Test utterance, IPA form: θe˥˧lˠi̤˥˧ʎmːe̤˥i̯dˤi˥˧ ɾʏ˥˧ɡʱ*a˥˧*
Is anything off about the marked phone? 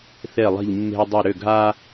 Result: yes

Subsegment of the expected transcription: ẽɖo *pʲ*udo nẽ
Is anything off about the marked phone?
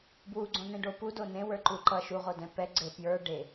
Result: yes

